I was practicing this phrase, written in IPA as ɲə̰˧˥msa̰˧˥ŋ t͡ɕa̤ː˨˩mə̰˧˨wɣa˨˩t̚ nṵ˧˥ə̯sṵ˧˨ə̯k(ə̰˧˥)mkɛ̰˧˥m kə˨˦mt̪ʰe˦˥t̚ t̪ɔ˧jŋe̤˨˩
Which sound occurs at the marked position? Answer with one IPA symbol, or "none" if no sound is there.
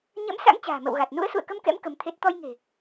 ə˧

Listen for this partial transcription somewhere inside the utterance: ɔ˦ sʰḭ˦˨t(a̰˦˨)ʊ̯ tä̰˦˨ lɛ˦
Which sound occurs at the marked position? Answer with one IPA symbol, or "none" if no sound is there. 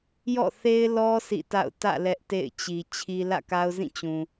a̰˦˨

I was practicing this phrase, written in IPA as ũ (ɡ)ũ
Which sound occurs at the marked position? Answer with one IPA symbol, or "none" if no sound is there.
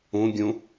ɡʲ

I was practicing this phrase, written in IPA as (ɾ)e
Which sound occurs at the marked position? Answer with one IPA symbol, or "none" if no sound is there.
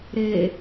ɾ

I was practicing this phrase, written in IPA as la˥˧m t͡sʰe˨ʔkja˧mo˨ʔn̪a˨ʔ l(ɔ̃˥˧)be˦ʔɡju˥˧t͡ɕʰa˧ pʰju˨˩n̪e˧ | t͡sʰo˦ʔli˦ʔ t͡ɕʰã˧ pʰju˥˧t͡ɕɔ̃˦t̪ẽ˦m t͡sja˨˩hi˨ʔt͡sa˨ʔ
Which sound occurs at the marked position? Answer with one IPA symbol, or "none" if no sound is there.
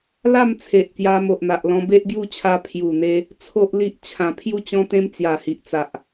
ɔ̃˧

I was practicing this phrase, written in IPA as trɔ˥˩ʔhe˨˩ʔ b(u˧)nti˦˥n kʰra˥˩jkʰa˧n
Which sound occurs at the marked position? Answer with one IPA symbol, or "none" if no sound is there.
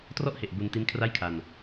u˧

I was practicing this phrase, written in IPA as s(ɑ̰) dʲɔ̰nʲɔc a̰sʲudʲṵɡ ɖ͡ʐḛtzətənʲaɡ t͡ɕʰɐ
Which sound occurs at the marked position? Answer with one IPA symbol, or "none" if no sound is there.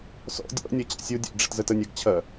ɔ̰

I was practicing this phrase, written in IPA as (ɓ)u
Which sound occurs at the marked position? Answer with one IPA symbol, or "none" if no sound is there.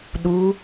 ɗ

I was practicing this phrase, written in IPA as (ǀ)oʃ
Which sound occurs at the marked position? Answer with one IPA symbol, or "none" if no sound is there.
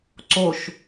ǀ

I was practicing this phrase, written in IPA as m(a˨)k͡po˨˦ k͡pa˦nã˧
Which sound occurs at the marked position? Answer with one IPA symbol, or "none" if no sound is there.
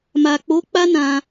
a˨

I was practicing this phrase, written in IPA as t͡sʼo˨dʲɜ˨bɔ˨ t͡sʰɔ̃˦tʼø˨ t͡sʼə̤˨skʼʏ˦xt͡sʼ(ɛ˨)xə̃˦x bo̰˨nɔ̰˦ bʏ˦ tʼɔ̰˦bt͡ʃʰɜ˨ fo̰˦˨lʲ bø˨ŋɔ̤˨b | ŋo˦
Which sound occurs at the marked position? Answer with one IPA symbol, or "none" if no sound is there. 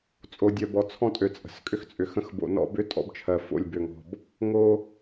ʏ˨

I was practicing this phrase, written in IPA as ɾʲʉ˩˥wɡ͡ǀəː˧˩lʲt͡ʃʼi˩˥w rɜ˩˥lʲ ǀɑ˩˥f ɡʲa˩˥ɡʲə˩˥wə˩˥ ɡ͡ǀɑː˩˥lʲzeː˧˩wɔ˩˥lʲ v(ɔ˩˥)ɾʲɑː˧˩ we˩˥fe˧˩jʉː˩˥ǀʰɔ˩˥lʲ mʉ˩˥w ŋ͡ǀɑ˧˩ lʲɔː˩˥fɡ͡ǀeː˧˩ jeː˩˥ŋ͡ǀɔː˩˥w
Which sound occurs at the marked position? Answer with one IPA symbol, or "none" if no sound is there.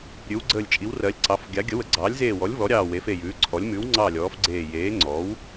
ɔ˩˥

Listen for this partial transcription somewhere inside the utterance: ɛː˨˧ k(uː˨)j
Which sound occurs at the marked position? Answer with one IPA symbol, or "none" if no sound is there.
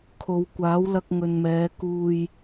uː˧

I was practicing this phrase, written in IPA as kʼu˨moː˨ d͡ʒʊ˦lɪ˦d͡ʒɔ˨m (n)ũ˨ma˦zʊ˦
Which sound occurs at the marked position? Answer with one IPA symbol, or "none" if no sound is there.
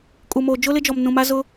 n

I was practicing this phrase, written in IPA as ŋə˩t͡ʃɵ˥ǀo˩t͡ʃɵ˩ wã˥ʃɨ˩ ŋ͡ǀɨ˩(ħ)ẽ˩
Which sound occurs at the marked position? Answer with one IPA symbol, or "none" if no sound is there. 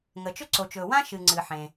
ħ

